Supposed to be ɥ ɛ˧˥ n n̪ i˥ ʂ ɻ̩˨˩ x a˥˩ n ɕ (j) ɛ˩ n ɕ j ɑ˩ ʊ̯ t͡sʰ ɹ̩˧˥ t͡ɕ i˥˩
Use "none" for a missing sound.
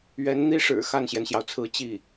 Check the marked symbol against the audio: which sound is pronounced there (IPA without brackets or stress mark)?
j